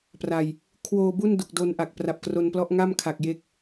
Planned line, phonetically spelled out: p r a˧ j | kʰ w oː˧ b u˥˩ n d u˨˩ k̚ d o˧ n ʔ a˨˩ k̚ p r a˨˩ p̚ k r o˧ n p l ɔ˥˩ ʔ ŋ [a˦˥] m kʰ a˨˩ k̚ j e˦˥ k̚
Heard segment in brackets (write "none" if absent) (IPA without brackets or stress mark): a˥˩